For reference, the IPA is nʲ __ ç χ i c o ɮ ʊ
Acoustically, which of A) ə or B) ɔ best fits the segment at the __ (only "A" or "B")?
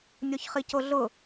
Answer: B